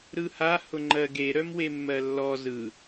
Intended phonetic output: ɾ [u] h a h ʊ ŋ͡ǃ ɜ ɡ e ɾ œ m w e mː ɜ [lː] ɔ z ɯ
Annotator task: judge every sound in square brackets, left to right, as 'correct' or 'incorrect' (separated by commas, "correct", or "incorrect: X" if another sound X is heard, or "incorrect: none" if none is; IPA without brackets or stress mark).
incorrect: ɯ, correct